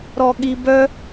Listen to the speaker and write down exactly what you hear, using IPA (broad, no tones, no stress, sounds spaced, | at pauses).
ɾ ɔ ɠ i b œ